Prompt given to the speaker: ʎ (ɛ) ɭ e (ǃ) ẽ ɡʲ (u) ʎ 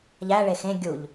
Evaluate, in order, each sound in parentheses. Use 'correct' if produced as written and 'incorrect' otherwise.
incorrect: æ, incorrect: x, correct

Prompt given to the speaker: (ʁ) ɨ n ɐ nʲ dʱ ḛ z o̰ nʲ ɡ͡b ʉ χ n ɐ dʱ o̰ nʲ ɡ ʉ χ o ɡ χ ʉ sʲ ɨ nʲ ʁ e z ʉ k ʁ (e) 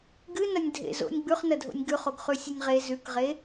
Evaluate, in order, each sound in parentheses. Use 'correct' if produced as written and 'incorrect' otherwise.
incorrect: ɡ, correct

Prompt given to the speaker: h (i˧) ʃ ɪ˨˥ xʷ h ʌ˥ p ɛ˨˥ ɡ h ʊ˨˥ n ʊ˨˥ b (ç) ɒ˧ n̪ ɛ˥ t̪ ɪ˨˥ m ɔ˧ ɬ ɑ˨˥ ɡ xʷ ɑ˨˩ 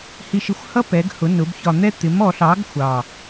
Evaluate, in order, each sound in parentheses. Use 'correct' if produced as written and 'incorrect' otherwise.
correct, correct

